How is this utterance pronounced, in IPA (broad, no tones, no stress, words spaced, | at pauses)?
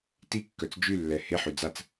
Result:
tikːœt͡s d͡ʒylːɛ heħy d͡zat͡s